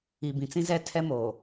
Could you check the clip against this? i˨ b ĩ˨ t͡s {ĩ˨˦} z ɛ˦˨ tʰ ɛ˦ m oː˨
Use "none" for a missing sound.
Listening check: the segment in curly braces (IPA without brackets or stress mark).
ĩ˦